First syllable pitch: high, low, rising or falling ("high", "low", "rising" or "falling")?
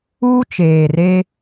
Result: high